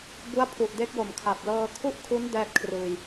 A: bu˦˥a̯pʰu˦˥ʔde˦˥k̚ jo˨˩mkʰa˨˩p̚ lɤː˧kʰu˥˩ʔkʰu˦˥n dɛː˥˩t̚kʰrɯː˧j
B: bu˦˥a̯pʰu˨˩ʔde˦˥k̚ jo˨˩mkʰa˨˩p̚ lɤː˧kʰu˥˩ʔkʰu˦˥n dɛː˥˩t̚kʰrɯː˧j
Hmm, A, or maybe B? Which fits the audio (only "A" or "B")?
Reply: B